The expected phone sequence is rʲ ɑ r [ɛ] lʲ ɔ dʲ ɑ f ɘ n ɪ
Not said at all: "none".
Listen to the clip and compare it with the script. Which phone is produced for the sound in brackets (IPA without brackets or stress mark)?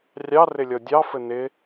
ɪ